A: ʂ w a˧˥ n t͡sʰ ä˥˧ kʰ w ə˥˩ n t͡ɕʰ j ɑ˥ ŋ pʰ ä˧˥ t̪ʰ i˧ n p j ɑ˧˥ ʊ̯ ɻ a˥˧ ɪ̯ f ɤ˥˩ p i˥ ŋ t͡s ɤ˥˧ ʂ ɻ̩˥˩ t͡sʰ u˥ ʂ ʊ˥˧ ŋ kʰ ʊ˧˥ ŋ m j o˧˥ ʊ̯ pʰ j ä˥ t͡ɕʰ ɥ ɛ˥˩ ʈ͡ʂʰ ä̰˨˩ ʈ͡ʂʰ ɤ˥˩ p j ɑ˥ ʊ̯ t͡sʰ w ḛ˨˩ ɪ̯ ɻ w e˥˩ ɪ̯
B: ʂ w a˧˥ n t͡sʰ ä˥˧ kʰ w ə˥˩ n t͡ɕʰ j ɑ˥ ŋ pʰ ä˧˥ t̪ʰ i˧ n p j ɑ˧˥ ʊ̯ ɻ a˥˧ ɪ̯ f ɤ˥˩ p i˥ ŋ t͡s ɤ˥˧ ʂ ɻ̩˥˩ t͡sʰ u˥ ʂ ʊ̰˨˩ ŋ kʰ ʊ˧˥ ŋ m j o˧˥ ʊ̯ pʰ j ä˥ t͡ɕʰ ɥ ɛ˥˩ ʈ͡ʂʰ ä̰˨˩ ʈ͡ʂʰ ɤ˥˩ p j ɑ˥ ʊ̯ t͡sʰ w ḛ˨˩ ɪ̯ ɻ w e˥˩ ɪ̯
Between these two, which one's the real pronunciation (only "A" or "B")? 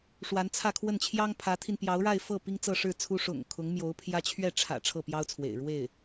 B